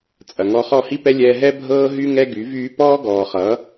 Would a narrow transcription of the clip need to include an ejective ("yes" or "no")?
yes